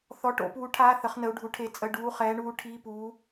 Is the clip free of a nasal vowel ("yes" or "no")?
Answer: yes